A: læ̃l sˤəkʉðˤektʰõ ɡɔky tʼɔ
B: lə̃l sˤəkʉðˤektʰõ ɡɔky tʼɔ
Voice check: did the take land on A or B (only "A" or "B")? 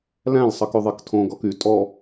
A